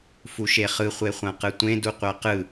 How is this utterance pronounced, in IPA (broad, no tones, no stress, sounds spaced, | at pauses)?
f u ʃ e χ ɯ χʷ e χʷ ã q ɯ tʷ ẽ d u qʷ a q ɯ